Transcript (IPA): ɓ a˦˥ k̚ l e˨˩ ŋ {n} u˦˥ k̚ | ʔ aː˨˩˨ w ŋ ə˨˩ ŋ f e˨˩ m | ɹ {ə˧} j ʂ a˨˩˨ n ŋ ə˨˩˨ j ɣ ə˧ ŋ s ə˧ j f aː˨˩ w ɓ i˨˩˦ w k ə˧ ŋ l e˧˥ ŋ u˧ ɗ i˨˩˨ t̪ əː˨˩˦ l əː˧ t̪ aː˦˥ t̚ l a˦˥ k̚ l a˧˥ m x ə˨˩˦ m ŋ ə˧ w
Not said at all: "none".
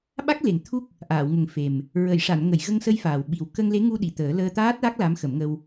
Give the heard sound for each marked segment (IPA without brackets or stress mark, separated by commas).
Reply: t̪ʰ, ə˨˩˨